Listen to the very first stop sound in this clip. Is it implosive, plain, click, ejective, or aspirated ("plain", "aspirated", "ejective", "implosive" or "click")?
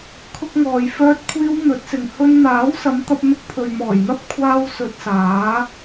aspirated